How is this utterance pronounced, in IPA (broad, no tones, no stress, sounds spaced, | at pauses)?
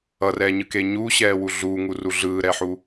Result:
ʌ r ɛ ɲ ɯ k e ɲ uː ɕ ɛː w u ɮ uː ŋ u r u ɮ ɯː ɾ ɛ ħ uː